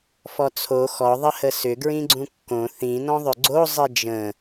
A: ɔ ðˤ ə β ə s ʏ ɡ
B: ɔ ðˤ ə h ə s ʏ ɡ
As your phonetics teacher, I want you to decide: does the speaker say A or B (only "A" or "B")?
B